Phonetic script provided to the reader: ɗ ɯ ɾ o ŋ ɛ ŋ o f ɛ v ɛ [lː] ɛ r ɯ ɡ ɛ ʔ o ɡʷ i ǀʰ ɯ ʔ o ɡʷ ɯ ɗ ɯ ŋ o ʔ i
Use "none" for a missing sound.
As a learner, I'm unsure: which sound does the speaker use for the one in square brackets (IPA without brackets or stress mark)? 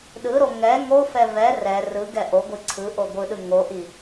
r